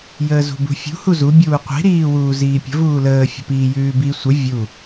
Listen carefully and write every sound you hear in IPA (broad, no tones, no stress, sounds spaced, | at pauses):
j əː z ṳ b ṳ fʲ ṳ h u z u bʲ uː qʷ i̤ ɾ iː w uː z iː pʲ ə̤ v uː l əː fʲ ə̤ p iː j ʉː b i sʷ ə vʲ u